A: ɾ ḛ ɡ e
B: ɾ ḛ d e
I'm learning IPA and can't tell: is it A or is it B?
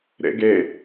A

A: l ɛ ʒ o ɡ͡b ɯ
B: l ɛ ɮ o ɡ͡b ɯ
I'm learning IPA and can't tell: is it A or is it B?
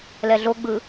B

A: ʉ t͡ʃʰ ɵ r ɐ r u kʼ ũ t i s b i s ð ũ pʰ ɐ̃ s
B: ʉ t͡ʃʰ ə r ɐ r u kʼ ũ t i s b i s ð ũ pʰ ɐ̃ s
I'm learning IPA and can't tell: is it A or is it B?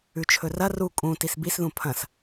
A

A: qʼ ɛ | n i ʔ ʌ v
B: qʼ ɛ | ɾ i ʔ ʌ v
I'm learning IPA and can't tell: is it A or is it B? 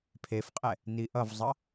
A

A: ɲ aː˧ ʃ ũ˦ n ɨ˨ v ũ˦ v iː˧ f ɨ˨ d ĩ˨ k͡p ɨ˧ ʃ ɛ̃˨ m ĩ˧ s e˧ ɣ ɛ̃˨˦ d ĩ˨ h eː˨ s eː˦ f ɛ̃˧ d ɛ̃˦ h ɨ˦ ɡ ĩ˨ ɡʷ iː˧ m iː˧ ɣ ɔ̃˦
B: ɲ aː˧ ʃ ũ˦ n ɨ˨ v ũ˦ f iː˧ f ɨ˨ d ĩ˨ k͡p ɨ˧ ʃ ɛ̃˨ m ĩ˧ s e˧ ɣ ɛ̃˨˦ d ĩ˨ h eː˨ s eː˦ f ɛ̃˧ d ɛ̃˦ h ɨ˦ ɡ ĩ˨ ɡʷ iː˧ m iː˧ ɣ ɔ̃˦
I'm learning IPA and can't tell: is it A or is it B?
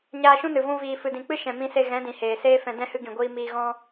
A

